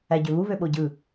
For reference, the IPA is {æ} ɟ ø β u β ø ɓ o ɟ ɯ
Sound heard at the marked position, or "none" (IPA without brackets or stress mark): æ